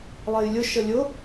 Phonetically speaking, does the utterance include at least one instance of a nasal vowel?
no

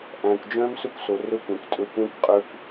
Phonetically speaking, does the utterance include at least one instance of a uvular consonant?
yes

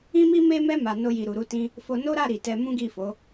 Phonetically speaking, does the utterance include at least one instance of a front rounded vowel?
no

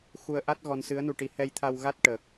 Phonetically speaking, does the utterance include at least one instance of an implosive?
no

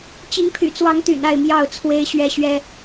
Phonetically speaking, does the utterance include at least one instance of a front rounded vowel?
yes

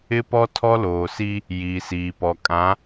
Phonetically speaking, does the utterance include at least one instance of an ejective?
yes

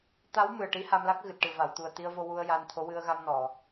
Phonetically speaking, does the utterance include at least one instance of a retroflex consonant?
yes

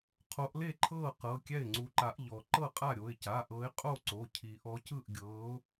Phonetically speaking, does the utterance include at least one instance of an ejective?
yes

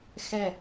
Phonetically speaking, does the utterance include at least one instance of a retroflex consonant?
no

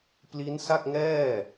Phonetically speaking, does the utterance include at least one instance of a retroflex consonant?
no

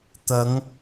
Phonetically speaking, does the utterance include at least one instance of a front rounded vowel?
no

